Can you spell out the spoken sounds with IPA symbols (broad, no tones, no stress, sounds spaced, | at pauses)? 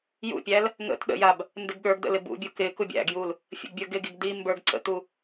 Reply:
j ṵ pʲ æ l | ŋ ə̰ t ɗ ə̰ j a b | n d ɪ ɡ ɠ ə˞ ɡ d ə̰ l ɪ b ṵ bʲ u k ɪ k u bʲ æ̰ ɡ j u l | fʲ ə̰ ɡ bʲ ə˞ ɡ ɪ ɡ i ɡ d i m b ə˞ ɡ ǀ ə̰ t̪ u